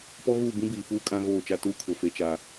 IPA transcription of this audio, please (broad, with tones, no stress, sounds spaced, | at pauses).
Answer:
p ɔ˦ ɣ uː˦˨ b ĩ˦ b iː˨ f uː˦ kʼ ã˦ ɣ oː˦˨ t͡ʃ a˦ t uː˦ kʰ ʊ˨ f e˦ t͡ʃ a˦